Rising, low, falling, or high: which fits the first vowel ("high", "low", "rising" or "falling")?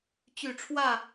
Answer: low